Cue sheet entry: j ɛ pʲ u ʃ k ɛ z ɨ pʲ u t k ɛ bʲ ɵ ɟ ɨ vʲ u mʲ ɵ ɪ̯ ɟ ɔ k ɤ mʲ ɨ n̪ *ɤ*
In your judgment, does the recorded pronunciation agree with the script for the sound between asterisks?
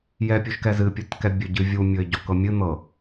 yes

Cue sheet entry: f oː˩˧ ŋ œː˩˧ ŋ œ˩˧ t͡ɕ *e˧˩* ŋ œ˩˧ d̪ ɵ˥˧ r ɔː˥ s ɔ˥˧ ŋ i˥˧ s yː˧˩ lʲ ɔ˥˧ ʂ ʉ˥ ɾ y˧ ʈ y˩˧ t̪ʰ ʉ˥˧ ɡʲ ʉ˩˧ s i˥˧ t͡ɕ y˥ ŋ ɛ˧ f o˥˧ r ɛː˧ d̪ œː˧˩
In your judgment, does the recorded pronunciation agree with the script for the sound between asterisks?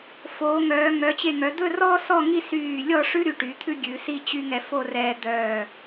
yes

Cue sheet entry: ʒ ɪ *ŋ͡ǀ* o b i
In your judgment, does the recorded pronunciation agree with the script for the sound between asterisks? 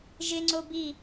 yes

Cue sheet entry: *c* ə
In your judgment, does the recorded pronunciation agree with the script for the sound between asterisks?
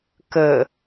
no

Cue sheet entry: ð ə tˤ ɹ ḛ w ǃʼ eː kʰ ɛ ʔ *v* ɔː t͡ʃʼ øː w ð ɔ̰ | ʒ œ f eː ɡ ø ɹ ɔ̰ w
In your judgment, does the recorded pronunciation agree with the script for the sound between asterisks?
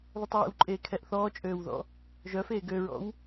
no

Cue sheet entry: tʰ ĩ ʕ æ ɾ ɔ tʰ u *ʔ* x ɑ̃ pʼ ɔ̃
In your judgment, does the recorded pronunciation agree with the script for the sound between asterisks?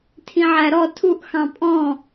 yes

